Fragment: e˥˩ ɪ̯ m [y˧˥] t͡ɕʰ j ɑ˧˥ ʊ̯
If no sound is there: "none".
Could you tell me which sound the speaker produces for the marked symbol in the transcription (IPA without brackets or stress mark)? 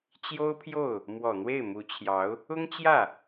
u˧˥